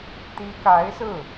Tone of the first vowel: rising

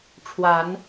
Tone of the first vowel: rising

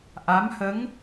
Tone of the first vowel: rising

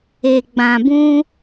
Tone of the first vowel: low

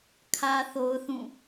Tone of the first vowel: high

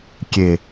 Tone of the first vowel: low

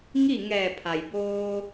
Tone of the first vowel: falling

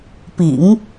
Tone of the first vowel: low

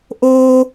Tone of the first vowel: high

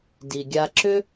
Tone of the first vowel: low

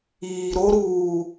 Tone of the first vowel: low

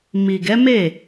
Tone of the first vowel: low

